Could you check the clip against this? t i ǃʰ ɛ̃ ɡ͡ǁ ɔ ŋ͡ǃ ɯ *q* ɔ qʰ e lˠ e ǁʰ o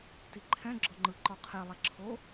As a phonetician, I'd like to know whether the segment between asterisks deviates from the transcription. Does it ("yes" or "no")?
yes